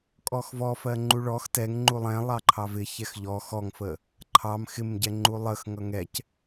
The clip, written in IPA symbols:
kʼ ɔ x v ɔ f ɜ ŋ͡ǃ u ɭ ɔ x t ɛ ŋ ŋ͡ǃ u lˠ ɛ̃ lˠ ɑ ǃʰ ɑ v ɪ ç ɛ x ʎ ɔ x ɔ ŋ f ə | ǃʰ ɑ m x ɪ m ɟ ɛ ŋ͡ǃ u lˠ ə x ŋ ʌ ŋ ɛ c

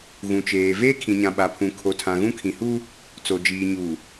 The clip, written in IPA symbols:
ɣ ũ˨ t͡ʃ eː˨ v eː˦ kʰ ĩ˨ ɲ ã˨ ɓ a˨ pʰ ũ˨ kʰ o˨ tʰ ã˨ ɣ ũ˦ kʰ ĩ˨ h uː˦ | t͡s o˨ d͡ʒ iː˨ ɲ uː˨

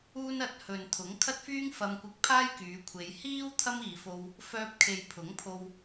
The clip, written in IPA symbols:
uː˥ n ɐ˧ t̚ h ɵ˨ n t̪ʰ ʊ˨˥ ŋ kʰ ɐ˥ t̚ f yː˥ ŋ f ɐ˧ m kʷ ɪ˧ k̚ pʰ aː˥ j k yː˨˧ kʷʰ e˨˧ j h iː˥ w t̪ʰ ɐ˥ m iː˨ f o˧ w | f œː˧ p̚ kʰ e˨ j pʰ ʊ˨˥ ŋ pʰ o˧ w

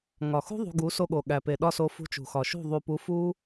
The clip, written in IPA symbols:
ŋ ɒ˨ x ṳ˦ ðˤ ṳ˧ ɡ u˨˦ s o˧ ɠ o˨ ɠ æ˨ p e˨ ɗ ɒ˧ s o˨˦ f ṳ˧ t͡ʃ ṳ˨ x ɒ˨ ʃ ṳ˦˨ ðˤ u˨ p u˨˦ f u˧

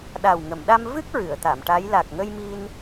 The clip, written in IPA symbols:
ɗ a˨˩ w ŋ ə˨˩˨ m ɗ a˧ m v ɨ˦˥ k̚ ɹ ɨ˨˩˨ ə̯ t̪ a˨˩˨ m ʈ a˧˥ j l a˨˩ k̚ ŋ ə˧ j m i˧ n

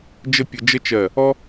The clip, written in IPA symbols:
d͡ʒ ə˥˧ pʲ ə˧ d͡ʒ ə˥ t͡ʃ ɜ˧˩ | ɔ˥

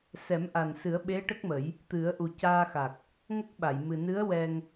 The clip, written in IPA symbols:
s ɛ˨˩˦ m ʔ a˨˩ n s ɨ˨˩˦ ə̯ ɓ e˧˥ ʈ ə˦˥ k̚ m ə˨˩˦ j | t̪ ɨ˨˩˦ ə̯ ʔ u˨˩ c aː˧ x a˨˩ k̚ | ŋ ə˦˥ k̚ ɓ a˨˩˨ j m ɨ˨˩ n ɨ˧˥ ə̯ w ɛ˧ ŋ

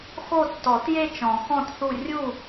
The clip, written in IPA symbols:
x o˦˨ tː ɔ˨˩˦ t j e˦˨ t͡ʃ ɔ̃˨˩˦ x ɔ̃˦˨ t θ u˦˨ rʲ u˦˨

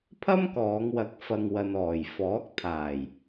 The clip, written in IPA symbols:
pʰ ɐ˥ m k ɔː˨˧ ŋ w ɐ˨ k̚ f ɐ˨ ŋ w ɐ˨ n ɔː˨˩ j f ɔː˨˥ k̚ t̪ʰ aː˨˩ j

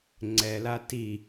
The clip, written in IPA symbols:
ŋ͡ǀ ɛ l a t i

